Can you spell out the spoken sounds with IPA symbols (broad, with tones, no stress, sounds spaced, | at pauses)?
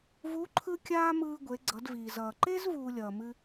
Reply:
v u˧˥ ǃʰ ɯ˥ kʲ aː˥ m ɯː˧ ɡʷ e˩˧ ɡ͡ǀ ʌ˩˧ d v iː˩ z ʌː˩ ǃ e˥ z v uː˧ lʲ ʌː˩ m ɨ˧